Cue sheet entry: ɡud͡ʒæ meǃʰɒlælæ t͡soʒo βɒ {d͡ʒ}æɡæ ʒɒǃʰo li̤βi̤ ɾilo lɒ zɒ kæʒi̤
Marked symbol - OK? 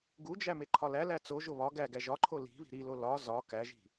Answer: no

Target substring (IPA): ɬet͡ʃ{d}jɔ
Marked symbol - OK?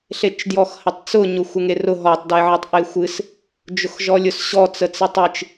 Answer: yes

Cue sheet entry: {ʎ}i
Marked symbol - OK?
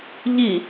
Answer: yes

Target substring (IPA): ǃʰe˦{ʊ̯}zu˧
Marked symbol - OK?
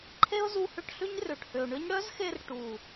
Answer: yes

